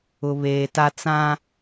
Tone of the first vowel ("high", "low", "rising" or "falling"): low